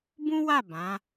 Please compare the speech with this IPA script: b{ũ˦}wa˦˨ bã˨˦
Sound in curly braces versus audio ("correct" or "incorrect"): correct